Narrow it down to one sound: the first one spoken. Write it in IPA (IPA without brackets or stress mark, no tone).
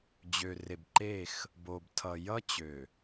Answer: d͡ʑ